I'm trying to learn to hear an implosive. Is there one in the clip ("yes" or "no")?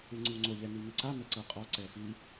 no